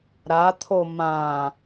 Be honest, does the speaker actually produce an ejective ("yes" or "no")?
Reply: no